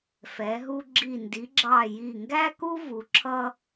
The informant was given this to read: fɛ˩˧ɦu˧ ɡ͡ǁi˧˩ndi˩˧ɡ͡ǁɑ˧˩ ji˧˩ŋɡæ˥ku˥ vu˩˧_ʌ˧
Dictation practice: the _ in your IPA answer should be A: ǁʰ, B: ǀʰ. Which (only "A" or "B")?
A